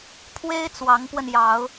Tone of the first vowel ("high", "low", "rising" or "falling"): high